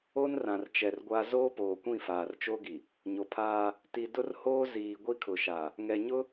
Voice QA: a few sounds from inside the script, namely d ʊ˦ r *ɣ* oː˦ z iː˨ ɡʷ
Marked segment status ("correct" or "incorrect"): incorrect